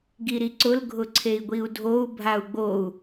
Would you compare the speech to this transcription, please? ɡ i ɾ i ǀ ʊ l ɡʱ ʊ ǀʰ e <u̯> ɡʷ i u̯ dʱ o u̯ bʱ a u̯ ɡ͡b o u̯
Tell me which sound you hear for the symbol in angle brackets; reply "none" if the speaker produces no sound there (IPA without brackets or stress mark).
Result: i̯